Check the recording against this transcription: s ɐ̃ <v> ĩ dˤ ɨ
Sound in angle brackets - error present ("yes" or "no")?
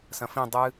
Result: yes